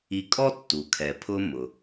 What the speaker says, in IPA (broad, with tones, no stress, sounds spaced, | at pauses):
i˧ kʼ ɔ˥ tː u˩ kʰ ɛ˩ pʰ ʊ˧ m ʊ˩